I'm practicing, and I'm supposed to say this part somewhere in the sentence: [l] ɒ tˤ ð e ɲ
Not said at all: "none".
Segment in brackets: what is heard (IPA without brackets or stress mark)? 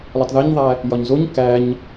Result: l